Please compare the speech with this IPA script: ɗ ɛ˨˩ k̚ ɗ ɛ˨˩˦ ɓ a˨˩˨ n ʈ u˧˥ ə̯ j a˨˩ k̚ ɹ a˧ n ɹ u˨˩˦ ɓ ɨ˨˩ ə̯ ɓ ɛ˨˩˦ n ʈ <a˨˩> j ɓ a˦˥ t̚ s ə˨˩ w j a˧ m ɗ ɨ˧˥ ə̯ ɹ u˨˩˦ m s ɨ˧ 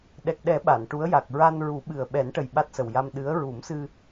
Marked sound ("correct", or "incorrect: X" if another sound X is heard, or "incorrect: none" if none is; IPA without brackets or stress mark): incorrect: ə˨˩